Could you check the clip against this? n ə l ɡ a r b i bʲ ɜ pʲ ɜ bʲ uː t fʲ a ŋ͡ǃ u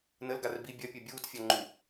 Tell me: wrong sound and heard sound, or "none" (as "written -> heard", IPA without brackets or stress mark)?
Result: none